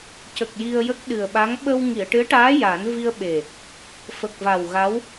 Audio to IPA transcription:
c ə˨˩ k̚ j i˧ ə̯ j ə˦˥ k̚ ɗ ɨ˨˩ ə̯ ɓ a˧˥ ŋ ɓ ə˧ w ŋ i˨˩˨ ə̯ ʈ ɨ˧˥ ə̯ ʈ aː˧˥ j a˨˩˦ n v i˧ ə̯ ɓ e˨˩ | f ə˨˩ k̚ v a˨˩ w ɣ a˧˥ w

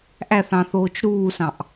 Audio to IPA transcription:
ʔ æ θ ɑ̃ θ oː t͡ʃ ɾ uː s ɑ̃ ʔ

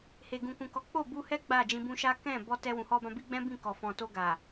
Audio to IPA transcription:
h e˨ ɡ ũ˨ k ũ˨ k ɔ˨˦ k͡p o˦˨ b u˧ h ɛ˦ ɡ͡b a˦˨ d͡ʒ ĩ˧ b ũ˦ ʃ a˦ k ɛ̃˦˨ b ɔ˧ t ɛ˧ w ũ˨ h ɔ˧ b ã˧ b i˦ ɡ͡b ɛ̃˦ b ĩ˦˨ k ɔ˨ f ɔ̃˨ t o˧ ɡ a˨

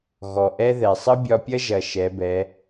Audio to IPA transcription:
ɣ ɔ˩ ʔ ɛ˥ ð ɛ˩ sˤ ə˥ bʲ ɒ˧ pʲ ɐ˥ ʒ ɐ˩ ʃ ɛ˩˧ b ɛ˩˧

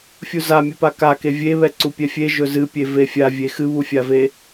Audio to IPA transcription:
fʲ u z a mʲ ɨ p a k a k e vʲ e β ɛ ǀ u pʲ ɛ fʲ e ʒ ɵ z ɨ pʲ e v e fʲ a vʲ e x ɨ β u fʲ a v e

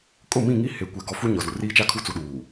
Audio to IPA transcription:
kʼ ʊ˦˨ m ĩ˦˨ ŋ i˦ h e˨ kʷ ɛ˨ ɡ ɔ˨˦ f u˦ ɲ ɔ˨ z u˨ r iː˦ t͡ʃ a˦ kʰ u˦ t͡s u˨ ɗ uː˨

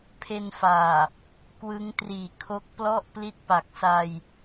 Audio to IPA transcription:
pʰ e˧ n f aː˨˩ | k w ɯ˦˥ ŋ t r iː˨˩ kʰ o˦˥ k̚ p l ɔ˥˩ ʔ p l i˥˩ t̚ p a˨˩ k̚ s a˧ j

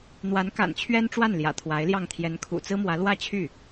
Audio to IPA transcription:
n̪ w a˧˥ n k a̰˨˩ n t͡ɕʰ ɥ ɛ˥ n ʈ͡ʂ w a˥˩ n l j ä̰˨˩ t̪ʰ w a˧˥ ɪ̯ l j ɑ˥˩ ŋ t̪ʰ j ɛ˧˥ n kʰ ṵ˨˩ t͡s ɹ̩˥ m w ä˧˥ l w ä˥˧ t͡ɕʰ y˥˩

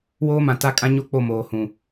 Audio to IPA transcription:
w oː˦ m ã˨ t a˦ kʼ ã˦ ɲ o˦ k͡p o˦˨ m oː˨ h ũ˨

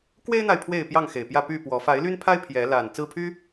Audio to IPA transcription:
k w e˦ ɪ̯ n̪ a˨ ɪ̯ pʰ w e˥˨ ɪ̯ p j ɑ˥˨ ŋ x e˨˩ ɪ̯ p j ä˥˨ p y˥˨ p w ɔ˨˦ f a˨˦ ɪ̯ l y˦ n pʰ a˦ ɪ̯ pʰ j ɛ˨˦ l a˨˩ n t͡s ɹ̩˥˨ pʰ y˦

